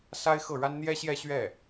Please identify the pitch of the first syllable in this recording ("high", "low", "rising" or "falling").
high